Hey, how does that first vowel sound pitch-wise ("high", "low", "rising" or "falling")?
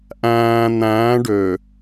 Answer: low